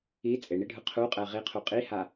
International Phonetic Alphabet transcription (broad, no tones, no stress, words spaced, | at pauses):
i t͡sʼeɳiɖʱɯ qʰuqʼɛ ʁiqʰu qʼiha